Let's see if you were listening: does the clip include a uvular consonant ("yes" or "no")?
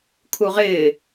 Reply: yes